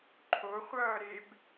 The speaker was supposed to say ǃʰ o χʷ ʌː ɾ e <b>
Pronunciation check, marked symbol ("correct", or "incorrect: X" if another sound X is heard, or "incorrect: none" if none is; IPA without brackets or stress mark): correct